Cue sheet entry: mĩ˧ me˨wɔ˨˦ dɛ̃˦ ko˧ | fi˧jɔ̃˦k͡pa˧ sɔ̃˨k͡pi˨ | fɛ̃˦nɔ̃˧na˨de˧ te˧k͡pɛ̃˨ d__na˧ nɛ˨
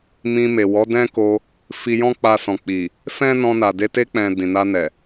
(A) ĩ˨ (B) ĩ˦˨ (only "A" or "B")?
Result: A